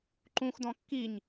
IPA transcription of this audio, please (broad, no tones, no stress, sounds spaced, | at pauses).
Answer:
ǃ ũ x d ɔ̃ kː i ɲ